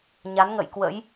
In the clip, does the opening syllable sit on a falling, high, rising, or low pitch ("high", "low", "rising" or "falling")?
rising